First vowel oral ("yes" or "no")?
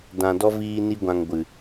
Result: no